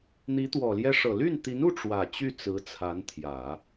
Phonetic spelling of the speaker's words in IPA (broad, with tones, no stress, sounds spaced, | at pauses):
n̪ i˧˥ t̪ w ɔ˨˩ l j ɛ˥ ʂ ɤ˨˩ l y˥˩ n t̪ i˧˥ n u˥˩ ʈ͡ʂ w ä˨˩ t͡ɕ y˥˩ t͡s ɹ̩˧˥ t͡sʰ a˧˥ n t̪ʰ j ä˨˩˦